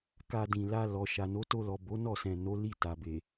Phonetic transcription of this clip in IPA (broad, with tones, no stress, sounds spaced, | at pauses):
k a˧ d ĩ˨ l a˧ l ɔ˨ ʃ a˨ n o˨˦ t o˧ l ɔ˨ b o˨˦ n ɔ˦˨ s ɛ̃˨ n o˨˦ l i˦˨ t a˨ b e˨